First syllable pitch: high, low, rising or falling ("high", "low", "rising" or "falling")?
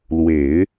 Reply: low